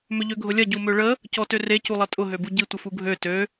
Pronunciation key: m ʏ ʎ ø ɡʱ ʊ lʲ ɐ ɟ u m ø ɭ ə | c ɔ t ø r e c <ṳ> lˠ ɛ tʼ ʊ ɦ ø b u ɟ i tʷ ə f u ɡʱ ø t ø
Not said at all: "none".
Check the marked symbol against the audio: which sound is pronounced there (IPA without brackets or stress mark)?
u